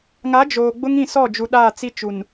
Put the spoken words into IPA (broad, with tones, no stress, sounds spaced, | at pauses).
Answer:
ŋ a˨˦ d͡ʒ oː˨ ɡ͡b ʊ˦ ŋ ĩ˦˨ s ɔ˦˨ d͡ʒ u˨ ɗ aː˦˨ t͡s i˦ t͡ʃ u˨ n